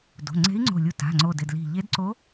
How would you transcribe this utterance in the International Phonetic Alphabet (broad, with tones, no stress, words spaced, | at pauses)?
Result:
do̤˩˧˩ŋ͡ǀe̤˧˥i̯ŋ͡ǀo̤˧˩ lʲu˧˩ ta̤˩˧˩ŋ͡ǀo˧˩dɪ˧˩d li̤˧˩ʎe˧˥dǀo˧˥